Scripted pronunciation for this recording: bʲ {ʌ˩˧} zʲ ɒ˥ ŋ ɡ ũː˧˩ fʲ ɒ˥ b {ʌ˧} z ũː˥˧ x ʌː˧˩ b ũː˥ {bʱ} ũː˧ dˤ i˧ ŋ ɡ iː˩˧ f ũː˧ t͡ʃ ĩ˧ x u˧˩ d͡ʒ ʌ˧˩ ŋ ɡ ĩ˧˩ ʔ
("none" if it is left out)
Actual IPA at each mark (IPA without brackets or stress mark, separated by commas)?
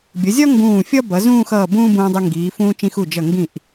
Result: ʌ˩˧, ʌ˩˧, b